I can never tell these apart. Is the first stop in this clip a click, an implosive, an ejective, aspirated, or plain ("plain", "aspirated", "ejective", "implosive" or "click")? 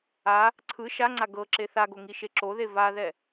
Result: click